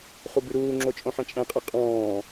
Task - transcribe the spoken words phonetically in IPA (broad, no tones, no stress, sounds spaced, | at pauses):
χ u b ʉ ɾ uː ŋ͡ǁ o t͡ʃʼ õ ħ ɛ̃ t͡ʃʼ ɛ̃ qʼ ɛ qʼ ɔ̃ː